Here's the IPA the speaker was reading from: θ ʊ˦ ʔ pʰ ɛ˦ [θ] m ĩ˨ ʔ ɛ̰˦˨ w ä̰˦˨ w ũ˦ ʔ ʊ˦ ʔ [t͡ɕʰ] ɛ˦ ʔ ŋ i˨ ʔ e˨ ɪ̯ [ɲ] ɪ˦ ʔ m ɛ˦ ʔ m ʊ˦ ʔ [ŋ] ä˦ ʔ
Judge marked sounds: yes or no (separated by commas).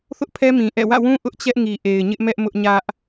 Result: no, no, yes, no